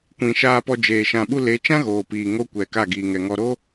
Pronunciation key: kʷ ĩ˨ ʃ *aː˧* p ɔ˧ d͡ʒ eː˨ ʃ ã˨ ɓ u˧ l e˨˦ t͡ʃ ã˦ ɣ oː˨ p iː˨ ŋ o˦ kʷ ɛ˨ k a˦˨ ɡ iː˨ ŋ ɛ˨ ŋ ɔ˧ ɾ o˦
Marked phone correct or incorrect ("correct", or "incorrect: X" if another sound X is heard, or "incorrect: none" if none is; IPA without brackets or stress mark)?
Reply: correct